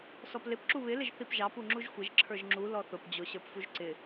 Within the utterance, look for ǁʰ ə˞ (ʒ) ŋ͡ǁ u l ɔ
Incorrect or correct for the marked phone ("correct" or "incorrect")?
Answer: correct